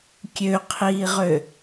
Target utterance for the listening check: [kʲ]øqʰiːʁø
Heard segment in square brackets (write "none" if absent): kʲ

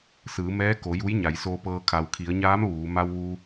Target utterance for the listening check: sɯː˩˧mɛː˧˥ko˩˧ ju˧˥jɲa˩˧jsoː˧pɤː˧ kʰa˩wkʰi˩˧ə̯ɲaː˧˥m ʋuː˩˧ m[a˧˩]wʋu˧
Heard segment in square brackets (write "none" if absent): a˧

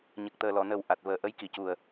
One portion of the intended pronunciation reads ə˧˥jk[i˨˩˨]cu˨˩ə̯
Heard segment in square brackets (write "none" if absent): i˨˩˨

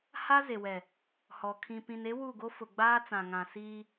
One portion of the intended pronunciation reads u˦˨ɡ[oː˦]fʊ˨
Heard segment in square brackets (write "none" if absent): o˦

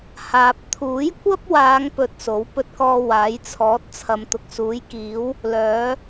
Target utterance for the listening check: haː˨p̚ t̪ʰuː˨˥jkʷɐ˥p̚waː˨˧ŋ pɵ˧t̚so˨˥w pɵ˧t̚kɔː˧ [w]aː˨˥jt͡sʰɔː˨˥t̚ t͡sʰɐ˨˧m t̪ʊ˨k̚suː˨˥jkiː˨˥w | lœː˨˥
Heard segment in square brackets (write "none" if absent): w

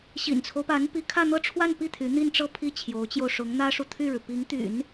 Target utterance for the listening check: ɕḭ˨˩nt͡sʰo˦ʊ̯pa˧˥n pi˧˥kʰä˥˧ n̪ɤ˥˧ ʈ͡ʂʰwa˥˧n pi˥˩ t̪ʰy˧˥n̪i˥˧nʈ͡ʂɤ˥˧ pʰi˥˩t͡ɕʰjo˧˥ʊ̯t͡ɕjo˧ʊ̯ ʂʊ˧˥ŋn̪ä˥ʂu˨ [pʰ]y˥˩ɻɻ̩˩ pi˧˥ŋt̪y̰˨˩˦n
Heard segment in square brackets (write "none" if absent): t̪ʰ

